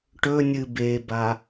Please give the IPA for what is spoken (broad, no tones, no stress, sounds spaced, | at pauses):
ʈ ɵ nʲ ɨ b e b a